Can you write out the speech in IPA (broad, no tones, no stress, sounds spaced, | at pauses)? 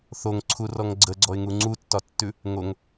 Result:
θ o ŋ ǀʰ u r ɔ ŋ ɡ͡ǀ ə ɡ͡ǀ ɔ ɪ̯ ŋ u ŋ͡ǀ u tː ɒ tː ʉ | ŋ o ŋ